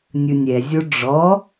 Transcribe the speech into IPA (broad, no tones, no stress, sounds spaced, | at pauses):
nʲ ɯ nʲ ɛ zʲ o ɖ͡ʐ ɔ